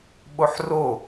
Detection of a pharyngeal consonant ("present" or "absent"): present